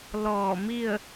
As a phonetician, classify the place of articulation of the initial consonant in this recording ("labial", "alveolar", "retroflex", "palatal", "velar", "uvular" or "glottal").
alveolar